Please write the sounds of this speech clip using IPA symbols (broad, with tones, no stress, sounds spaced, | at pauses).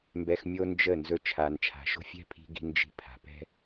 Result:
m b ɛ˧ x mʲ o˦ n d͡ʒ ə˦˨ n z ɵ˧ t͡ʃʰ a˨ n t͡ʃʰ a̤˨ ʃ o̤˦ fʲ ɛ̤˦ pʰ i̤˧ ɡ i̤˧ n d͡ʒ i̤˧ pʰ a̤˨ p ɛ̤˦